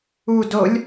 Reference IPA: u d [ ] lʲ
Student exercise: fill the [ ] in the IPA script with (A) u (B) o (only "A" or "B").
B